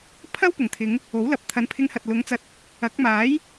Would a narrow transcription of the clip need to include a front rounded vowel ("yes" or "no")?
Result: no